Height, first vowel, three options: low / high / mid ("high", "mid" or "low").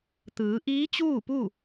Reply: high